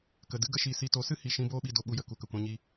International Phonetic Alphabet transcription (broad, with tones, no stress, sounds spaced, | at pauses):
k ə˨ d ɨ˦ ɡ ə˧ ʃ i˨ s i˧ t o˨˦ s ɨ˦ h i˨ ʃ ĩ˦ b oː˦ ɓ i˧ d o˧ ɓ u˧ j ə˨ k u˨ k ə˨ kʷ ã˧ ɲ i˧